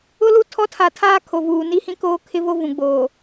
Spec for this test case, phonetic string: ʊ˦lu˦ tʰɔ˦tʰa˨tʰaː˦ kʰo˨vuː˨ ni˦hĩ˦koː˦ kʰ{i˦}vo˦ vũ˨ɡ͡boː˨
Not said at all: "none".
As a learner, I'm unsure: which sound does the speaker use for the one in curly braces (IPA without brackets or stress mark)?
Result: ɪ˦